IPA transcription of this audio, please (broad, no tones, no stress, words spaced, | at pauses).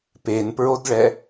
penpɹodɭɛ